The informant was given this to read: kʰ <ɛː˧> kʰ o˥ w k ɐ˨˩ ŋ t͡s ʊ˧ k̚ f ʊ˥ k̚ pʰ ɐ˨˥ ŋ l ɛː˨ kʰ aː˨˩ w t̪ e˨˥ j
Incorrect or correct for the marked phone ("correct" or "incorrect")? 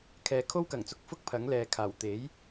incorrect